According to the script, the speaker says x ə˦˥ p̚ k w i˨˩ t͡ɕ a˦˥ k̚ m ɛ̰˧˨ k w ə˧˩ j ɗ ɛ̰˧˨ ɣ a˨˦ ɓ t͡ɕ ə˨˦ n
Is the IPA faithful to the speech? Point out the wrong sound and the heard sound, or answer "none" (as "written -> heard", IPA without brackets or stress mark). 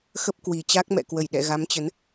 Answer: ɓ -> m